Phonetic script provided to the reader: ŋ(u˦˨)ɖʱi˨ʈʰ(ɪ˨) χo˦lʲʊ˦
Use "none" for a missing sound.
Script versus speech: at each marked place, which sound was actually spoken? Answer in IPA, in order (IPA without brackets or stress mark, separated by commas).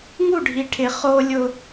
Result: u˦˨, ɪ˨